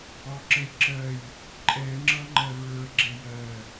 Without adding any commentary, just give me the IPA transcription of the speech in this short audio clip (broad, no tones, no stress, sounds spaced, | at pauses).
ɒ ǁ ə j ǁ ɜ j | ǃʼ ɛ ŋ͡ǁ ʌ ŋ͡ǃ ɜ ɹ ə˞ ɡ͡ǁ ɛ j ɜ